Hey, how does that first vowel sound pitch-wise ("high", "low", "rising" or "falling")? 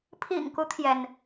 low